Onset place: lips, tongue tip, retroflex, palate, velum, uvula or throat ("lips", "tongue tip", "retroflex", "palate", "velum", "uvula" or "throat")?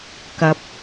velum